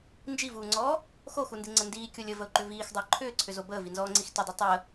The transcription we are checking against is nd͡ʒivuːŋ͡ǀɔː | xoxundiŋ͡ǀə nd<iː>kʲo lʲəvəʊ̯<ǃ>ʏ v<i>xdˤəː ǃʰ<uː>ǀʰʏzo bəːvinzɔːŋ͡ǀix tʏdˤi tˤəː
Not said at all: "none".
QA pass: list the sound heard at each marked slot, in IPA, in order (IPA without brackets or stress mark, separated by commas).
iː, ǃ, iː, ʏː